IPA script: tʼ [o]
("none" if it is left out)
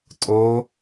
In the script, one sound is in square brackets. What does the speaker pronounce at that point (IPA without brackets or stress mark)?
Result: o